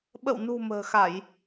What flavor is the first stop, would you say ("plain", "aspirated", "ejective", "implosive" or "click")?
implosive